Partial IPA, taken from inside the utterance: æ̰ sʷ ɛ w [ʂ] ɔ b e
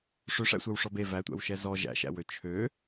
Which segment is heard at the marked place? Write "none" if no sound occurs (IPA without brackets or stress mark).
ʂ